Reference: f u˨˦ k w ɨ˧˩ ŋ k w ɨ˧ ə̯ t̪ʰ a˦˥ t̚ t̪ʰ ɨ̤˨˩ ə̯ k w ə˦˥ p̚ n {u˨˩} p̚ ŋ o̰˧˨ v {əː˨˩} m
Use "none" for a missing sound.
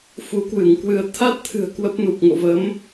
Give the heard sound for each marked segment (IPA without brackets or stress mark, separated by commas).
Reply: u˨˩, əː˨˦